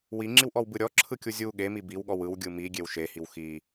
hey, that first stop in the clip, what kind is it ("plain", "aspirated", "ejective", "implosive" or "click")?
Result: click